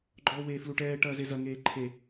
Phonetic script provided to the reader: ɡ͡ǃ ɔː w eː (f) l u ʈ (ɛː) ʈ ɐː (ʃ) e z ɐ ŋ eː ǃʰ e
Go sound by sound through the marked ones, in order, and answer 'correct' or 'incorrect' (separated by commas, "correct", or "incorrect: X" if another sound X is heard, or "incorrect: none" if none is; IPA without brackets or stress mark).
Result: correct, correct, incorrect: z